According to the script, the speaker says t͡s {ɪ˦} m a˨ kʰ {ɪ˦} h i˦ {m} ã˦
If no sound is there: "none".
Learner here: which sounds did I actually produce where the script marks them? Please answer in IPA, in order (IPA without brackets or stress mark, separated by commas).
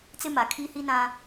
ɪ˦, i˦, n